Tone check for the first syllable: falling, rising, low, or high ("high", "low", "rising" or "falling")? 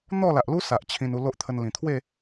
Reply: falling